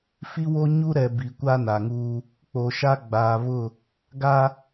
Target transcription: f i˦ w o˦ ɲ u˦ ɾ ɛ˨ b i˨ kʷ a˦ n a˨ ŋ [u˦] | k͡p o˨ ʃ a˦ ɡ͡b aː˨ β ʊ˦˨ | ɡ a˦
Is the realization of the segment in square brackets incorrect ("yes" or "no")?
yes